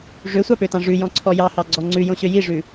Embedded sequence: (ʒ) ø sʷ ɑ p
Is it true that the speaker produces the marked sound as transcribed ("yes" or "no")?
no